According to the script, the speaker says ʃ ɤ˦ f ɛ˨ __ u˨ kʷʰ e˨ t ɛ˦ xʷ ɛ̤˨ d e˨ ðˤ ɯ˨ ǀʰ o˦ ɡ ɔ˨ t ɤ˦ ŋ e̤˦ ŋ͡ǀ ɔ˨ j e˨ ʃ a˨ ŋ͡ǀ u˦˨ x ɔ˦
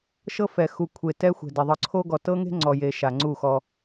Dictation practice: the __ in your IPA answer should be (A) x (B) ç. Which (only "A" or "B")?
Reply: A